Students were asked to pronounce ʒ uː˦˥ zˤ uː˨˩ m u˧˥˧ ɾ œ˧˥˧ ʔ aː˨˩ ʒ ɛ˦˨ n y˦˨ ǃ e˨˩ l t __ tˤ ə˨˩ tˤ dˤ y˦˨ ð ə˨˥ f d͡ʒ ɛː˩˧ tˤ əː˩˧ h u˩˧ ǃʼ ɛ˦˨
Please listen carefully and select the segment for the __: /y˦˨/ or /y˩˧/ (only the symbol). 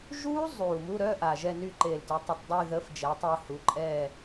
y˩˧